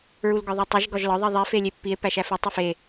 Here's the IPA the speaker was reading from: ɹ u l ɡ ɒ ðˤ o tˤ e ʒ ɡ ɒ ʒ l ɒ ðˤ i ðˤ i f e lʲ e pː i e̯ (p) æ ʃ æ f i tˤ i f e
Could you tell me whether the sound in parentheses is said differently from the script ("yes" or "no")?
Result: no